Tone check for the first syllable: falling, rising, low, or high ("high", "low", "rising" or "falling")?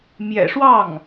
low